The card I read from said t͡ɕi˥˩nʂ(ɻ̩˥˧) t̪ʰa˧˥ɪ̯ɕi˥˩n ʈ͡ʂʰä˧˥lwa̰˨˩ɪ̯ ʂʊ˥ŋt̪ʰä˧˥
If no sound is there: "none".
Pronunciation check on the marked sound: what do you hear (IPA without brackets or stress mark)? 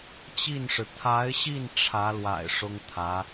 ɻ̩˩